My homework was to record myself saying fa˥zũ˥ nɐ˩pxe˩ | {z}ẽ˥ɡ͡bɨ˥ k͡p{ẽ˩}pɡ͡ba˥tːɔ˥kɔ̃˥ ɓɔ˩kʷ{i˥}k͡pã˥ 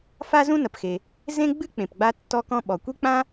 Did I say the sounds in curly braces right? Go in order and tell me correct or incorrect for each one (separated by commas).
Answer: correct, correct, correct